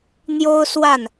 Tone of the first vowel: high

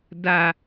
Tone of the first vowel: low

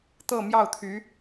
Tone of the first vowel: falling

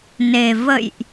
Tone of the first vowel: low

